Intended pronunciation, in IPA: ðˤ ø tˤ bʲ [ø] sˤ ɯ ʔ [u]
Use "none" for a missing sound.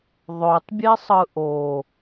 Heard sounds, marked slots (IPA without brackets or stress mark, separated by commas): e, o